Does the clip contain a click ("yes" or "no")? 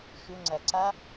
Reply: yes